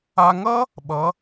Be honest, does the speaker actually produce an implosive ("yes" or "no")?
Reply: yes